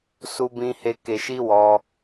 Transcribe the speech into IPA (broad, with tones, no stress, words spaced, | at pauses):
su˧bĩ˧he˧ ke˧ʃi˦wɔ˧